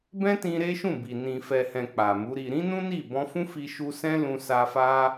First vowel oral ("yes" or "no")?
no